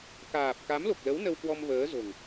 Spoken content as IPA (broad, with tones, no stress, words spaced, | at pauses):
kaː˨˩p̚ ka˨˦mlo˨˩k̚lə˨˦w nə˧wkwɔ˧mvəː˨˦zo̤˨˩ŋ